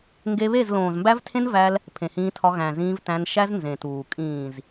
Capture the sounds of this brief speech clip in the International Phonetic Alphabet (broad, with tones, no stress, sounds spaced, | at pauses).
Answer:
ŋ ɡ e˧ β e˦˨ z l õː˨ z m b æ˦ v tʰ ẽ˦ n v æ˧ l | pʰ ẽ˨ h ĩː˧ tʰ ɒ˧ ɣ æ̃˨ z ĩː˧ v t æ̃˧ n ʃ æ˦ z n z ẽ˨ t uː˨ kʼ ĩː˨ z